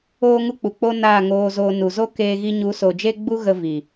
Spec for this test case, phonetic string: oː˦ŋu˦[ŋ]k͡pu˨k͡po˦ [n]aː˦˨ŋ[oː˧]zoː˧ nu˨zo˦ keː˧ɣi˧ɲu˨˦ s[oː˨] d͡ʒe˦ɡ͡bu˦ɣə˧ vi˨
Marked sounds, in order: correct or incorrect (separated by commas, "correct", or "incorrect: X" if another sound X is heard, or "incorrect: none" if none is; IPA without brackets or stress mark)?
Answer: incorrect: none, correct, correct, incorrect: o˨